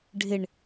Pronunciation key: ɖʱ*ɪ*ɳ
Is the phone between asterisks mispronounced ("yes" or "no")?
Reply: no